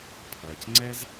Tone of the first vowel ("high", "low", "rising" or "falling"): low